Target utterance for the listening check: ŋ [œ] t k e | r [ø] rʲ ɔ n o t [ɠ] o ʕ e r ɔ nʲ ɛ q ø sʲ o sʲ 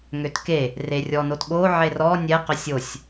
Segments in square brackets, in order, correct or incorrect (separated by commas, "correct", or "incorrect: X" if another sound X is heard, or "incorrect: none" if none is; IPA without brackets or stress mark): incorrect: ø, incorrect: e, correct